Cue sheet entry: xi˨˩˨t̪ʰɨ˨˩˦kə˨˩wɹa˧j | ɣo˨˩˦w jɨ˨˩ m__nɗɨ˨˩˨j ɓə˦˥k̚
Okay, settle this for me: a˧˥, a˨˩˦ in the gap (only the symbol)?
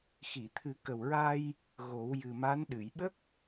a˧˥